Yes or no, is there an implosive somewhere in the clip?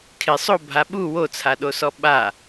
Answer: yes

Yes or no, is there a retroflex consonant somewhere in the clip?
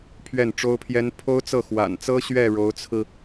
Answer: yes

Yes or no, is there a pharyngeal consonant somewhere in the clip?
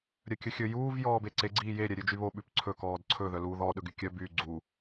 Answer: no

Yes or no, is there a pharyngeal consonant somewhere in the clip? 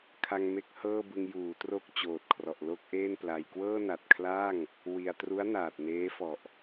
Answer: no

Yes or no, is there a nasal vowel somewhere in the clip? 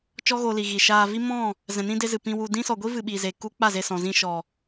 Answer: yes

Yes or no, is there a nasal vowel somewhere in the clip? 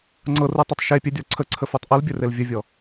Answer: no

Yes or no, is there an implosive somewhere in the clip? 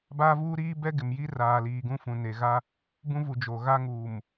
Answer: no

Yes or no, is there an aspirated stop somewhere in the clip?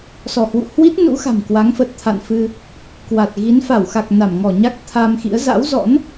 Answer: yes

